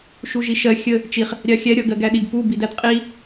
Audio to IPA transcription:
ʃ u ʒ i ʃ ɜ xʲ ə | t͡ʃ i χ | ɾʲ ɑ xʲ æ ɾʲ ɒ ɡ ɜ ɡ æ ɗ i ɡ p u b i d æ d qʼ i

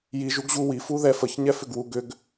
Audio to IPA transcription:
j i ʒ u ɡ ʑ u w i f u ð ɛ f ə ç ɲ ɛ f ʏ ɡ w u ɡ ʏ ɡ

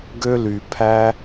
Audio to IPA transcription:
ɡ ø˦ l y˨ pʰ æ˦

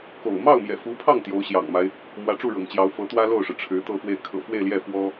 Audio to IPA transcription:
k o̰˨˩ ʊ̯ m ɑ˥˩ ʊ̯ m j ɛ̰˨˩ f u˧˥ pʰ ɑ˥˩ ŋ t̪ j o˧˥ ʊ̯ ɕ j ɑ̰˨˩ ŋ m a˦ ɪ̯ | m w ä˧˥ ʈ͡ʂ u˥˩ ɻ ɤ̰˨˩ ŋ t͡ɕ j ɑ˧˥ ʊ̯ f ɤ˧˥ t̪ w ä˥ l o˥˩ ʊ̯ ʂ ɻ̩˩ ʈ͡ʂʰ ɻ̩˧˥ t̪ ɤ˥˧ f w e˥˩ ɪ̯ kʰ ɤ̰˨˩ f w e˥˧ ɪ̯ l j ɛ˥˩ f w ɔ˥

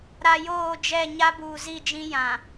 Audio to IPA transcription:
ɾ a˨ j oː˦˨ d͡ʒ ɛ˦˨ ɲ a˦ b uː˨ z i˦˨ d͡ʒ ĩ˦ j ã˨

